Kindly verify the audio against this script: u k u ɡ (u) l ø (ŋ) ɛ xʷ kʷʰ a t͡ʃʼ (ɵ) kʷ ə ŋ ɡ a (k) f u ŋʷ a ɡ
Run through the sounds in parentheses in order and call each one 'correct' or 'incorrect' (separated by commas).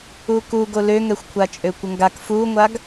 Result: incorrect, correct, incorrect, correct